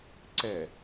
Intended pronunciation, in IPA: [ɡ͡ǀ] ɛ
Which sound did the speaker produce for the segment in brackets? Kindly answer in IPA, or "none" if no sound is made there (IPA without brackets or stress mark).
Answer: ǀ